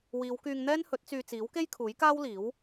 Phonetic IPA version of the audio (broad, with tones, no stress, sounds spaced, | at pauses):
w iː˨˧ w k yː˧ ŋ n̪ ɛː˥ n h ɵ˨˥ t̚ t͡s yː˧ t͡s iː˨˥ w k e˥ j kʰ uː˨˥ j k aː˥ w l iː˨˥ w